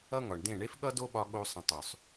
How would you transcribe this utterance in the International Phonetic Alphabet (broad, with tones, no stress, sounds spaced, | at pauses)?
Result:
ʌ˦ ŋ ɒ˨ ɳ d ẽ˦˨ ɳ e˦ f ɠ ʌ˦ d o˦ ɓ ɒ˧ ɠ o˧ sˤ ə̃˨ tˤ ø˨ sˤ